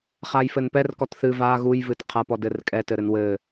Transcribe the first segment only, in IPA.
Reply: χ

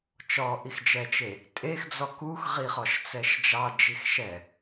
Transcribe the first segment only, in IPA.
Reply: t͡ʃ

